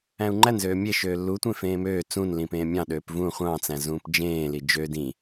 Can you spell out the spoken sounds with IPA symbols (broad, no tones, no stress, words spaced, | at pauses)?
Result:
æ̃u̯ŋ͡ǃænzøː mʲeʃ øːlːutʷẽ fẽːmøː t͡sũnlĩpẽː mʲɑ̃ɗøːp vũ χʷɑ̃t͡sæ̃ zũːpd͡ʒẽːli d͡ʒø dĩ